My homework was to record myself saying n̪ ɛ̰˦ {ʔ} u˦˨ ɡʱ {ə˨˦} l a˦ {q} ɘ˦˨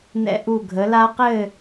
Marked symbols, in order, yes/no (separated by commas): yes, yes, yes